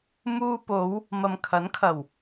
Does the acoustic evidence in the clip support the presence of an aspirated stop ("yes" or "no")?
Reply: yes